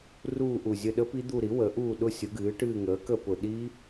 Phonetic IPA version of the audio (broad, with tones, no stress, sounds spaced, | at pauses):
r uː˦˨ ʔ u˨˩ zʲ ə˦˨ ɗ ə˦˥ p i˦˥ d̪ u˦˨ ɾ i˩˥ w ə˩˥ ʔ uː˦˨ ɗ ʊ˦˥ sʲ ʊ˩˥ ɡ ɨː˩˥ ʈ ɨː˦˨ ŋ əː˩˥ k ə˦˨ p ʊ˨˩ ɗ i˦˥